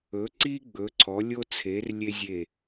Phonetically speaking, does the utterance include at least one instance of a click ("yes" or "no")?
yes